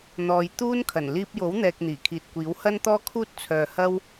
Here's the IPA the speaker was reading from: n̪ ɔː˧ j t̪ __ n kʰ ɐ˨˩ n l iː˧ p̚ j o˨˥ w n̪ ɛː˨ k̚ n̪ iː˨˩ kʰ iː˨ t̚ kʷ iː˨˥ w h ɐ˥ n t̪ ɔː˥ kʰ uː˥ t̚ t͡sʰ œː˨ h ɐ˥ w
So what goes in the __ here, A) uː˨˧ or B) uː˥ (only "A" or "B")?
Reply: B